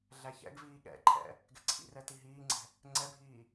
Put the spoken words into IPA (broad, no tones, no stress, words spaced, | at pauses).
ɮæçɛ̰ɡviː ɠɛ̰ǃʰɛ̰ | ɡɛ̤ǀʰḭrɛ tiɦiːŋ͡ǀɛ̤ | ŋ͡ǀɛbʱiː